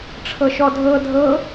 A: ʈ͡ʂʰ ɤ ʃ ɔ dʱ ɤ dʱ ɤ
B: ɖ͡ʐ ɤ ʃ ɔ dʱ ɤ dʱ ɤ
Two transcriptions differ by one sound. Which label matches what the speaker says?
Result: A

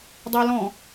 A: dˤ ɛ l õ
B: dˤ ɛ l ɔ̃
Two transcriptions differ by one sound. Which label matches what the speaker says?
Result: B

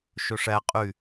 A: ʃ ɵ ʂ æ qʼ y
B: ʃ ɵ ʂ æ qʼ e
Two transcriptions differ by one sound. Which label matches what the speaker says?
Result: A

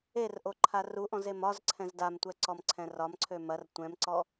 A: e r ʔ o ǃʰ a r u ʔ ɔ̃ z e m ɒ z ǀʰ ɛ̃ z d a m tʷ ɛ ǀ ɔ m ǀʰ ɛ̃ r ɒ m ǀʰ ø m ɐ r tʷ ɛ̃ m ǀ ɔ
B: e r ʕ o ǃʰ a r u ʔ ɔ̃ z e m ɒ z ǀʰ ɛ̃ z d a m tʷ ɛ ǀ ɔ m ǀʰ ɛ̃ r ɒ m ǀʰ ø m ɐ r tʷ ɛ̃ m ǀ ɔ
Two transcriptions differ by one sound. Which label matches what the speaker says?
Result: A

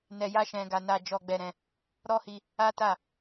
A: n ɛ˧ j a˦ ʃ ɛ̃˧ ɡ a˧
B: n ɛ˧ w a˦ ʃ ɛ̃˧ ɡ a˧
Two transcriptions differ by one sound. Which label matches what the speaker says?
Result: A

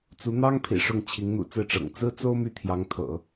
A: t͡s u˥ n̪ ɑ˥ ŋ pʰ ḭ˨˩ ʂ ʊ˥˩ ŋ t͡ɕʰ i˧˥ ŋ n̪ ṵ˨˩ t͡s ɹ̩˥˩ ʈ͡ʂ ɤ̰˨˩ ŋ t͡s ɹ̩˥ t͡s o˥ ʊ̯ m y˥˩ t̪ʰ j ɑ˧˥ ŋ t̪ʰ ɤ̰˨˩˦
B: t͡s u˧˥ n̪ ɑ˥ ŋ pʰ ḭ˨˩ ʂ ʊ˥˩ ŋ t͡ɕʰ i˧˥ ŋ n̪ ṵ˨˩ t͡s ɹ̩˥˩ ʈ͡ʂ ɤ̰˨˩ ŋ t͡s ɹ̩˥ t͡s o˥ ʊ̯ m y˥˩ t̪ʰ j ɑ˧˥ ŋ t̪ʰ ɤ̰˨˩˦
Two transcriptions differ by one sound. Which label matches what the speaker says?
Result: B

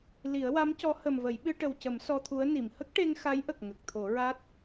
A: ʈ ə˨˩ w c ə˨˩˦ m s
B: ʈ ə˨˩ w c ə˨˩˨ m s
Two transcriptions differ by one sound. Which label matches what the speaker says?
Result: A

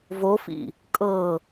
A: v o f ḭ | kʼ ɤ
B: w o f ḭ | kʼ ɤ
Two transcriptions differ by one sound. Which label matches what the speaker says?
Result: A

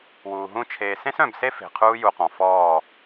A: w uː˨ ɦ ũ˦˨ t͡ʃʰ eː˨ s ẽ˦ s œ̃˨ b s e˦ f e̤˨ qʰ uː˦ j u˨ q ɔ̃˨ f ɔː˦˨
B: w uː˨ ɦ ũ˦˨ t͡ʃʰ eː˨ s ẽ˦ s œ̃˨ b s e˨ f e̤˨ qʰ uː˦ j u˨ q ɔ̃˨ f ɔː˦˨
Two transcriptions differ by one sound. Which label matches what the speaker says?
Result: A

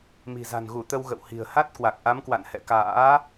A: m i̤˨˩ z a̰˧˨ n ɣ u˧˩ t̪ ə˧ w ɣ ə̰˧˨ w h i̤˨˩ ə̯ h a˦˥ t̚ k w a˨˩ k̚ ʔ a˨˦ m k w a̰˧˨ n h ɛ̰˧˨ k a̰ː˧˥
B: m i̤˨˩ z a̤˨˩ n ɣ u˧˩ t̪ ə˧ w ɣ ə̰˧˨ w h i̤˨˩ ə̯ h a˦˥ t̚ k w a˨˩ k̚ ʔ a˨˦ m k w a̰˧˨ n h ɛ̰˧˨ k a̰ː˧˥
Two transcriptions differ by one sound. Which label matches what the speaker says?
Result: B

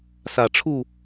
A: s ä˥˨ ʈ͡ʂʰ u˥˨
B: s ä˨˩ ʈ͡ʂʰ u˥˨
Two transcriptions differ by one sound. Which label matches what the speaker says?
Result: B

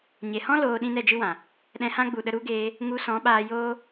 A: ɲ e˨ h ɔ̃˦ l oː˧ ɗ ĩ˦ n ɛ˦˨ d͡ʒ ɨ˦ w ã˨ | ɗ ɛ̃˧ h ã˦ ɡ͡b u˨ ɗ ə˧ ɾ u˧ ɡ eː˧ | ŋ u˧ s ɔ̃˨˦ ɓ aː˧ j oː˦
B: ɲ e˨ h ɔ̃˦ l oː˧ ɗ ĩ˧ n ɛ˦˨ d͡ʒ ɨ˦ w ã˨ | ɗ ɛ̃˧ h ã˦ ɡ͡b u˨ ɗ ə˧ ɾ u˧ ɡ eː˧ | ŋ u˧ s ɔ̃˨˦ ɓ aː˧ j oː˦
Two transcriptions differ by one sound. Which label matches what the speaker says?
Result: A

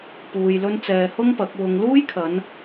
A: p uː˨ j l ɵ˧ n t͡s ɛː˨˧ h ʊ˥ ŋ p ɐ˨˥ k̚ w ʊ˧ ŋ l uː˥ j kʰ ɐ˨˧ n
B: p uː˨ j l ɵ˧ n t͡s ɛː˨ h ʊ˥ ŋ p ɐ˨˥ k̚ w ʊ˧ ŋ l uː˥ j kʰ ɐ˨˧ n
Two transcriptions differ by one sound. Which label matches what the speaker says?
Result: B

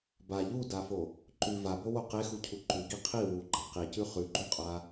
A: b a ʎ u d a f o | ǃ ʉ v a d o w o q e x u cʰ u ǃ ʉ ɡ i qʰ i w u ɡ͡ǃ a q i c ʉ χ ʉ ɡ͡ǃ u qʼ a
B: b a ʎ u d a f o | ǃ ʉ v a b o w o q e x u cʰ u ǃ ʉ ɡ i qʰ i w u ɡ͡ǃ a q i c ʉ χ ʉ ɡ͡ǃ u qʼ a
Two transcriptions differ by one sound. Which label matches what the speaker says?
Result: B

